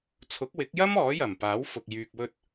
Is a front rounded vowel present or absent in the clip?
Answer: present